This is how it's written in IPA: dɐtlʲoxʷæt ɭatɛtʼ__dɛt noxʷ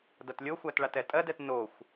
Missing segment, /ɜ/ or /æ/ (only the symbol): ɜ